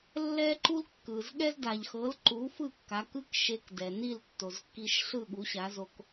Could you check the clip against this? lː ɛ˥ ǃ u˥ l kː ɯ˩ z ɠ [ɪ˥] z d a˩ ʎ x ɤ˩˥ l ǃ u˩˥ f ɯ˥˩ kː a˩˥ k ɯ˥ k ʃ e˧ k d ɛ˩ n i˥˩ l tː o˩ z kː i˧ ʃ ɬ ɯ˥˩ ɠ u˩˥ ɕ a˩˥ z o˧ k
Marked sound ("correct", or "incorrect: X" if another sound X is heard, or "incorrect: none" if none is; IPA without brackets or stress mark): incorrect: ɛ˥